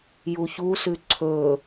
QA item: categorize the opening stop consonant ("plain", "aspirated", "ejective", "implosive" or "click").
click